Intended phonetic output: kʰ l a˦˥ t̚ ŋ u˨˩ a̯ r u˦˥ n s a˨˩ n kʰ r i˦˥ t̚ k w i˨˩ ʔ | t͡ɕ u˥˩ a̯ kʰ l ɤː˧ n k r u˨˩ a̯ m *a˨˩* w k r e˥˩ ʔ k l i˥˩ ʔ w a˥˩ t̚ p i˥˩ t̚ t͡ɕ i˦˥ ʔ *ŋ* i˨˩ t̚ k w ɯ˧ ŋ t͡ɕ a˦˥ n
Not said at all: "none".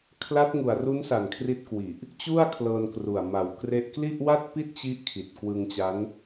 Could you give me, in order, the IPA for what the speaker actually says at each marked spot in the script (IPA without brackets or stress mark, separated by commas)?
a˨˩, kʰ